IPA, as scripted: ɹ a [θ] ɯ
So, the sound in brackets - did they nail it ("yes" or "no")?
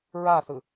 yes